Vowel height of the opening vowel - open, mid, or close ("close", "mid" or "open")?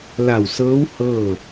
open